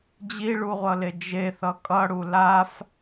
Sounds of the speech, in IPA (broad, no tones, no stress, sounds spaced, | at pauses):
d͡ʑ i ɭ u ʁʷ ʌ l e d͡ʒ e θ ʌ kʼ ʌ ɽ u l a f